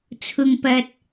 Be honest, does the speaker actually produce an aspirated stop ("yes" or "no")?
yes